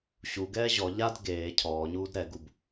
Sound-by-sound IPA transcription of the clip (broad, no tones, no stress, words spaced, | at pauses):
ɕuɡɛː ʑɔ ʎad ɡeː cʰɔːɲuːd ɾɛɡub